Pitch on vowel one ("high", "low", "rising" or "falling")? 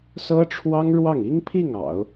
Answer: high